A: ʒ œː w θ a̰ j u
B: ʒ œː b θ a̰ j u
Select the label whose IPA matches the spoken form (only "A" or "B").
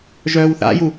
A